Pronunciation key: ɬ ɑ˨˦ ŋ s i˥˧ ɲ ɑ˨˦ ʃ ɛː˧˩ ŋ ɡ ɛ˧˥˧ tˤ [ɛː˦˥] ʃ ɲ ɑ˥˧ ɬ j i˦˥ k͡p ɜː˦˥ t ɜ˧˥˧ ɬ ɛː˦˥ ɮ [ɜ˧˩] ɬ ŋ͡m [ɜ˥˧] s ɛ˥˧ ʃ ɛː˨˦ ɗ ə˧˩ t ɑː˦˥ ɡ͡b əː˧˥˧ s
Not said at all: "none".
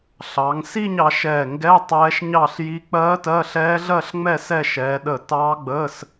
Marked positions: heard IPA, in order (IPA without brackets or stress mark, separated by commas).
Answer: ɛː˦˥, ɜ˥˧, ɛ˥˧